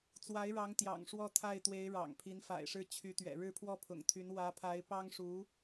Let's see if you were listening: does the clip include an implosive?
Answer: no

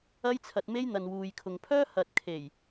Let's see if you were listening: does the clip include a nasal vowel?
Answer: no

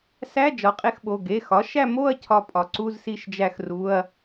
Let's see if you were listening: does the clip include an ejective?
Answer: yes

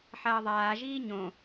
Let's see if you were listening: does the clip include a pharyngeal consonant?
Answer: yes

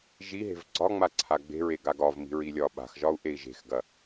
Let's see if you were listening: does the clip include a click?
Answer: yes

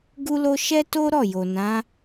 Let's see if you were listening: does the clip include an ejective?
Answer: no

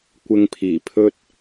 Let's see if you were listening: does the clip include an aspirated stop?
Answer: yes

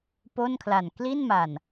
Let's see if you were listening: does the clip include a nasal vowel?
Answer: no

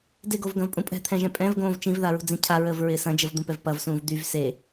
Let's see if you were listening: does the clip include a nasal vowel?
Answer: yes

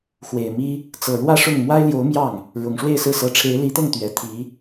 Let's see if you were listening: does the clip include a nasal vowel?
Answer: no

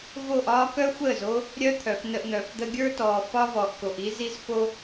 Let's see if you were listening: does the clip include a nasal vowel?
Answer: no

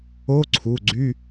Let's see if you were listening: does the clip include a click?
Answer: yes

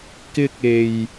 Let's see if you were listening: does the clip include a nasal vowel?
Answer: no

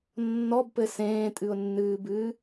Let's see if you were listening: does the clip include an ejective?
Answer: yes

